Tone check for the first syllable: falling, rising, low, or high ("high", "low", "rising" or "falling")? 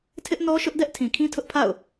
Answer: high